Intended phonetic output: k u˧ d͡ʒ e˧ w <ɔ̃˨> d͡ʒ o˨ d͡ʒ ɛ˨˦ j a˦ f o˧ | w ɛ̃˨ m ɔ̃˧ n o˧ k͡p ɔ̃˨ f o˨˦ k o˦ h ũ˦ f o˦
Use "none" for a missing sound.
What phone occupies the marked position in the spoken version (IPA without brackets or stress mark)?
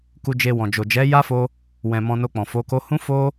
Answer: ɔ̃˨